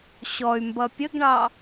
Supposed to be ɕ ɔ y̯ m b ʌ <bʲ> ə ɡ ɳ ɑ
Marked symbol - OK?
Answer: no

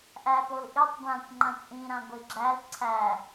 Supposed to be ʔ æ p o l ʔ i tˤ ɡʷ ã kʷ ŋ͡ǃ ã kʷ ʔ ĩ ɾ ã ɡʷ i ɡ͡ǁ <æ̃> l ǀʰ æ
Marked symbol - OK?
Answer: no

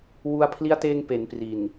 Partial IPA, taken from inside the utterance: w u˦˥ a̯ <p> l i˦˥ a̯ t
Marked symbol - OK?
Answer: no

